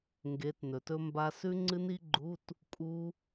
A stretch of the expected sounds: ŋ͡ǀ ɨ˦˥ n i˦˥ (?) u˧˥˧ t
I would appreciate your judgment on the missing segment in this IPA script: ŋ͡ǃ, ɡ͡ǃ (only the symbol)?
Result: ɡ͡ǃ